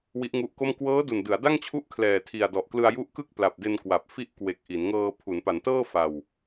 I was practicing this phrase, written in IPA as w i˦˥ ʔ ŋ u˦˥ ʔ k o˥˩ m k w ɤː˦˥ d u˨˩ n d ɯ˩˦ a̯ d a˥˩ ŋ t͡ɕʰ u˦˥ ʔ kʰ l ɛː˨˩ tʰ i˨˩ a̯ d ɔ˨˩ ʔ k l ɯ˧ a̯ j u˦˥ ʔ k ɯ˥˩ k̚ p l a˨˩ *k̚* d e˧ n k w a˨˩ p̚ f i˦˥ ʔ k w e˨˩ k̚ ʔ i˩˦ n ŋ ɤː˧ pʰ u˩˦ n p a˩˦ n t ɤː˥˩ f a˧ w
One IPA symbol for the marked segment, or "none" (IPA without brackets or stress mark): p̚